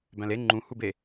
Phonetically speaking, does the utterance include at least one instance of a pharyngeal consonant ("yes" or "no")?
no